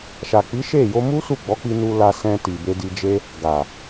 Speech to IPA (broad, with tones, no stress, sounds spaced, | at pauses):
ʃ a˨ k͡p i˨˦ ʃ e˦˨ j o˧ m u˦ s u˦˨ ɡ͡b ɔ˨˦ k͡p i˧ n u˧ l a˧ s ɛ̃˧ t i˨ b e˧ d i˧ d͡ʒ e˦ | ɡ a˨